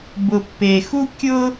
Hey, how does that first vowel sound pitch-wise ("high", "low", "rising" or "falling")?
low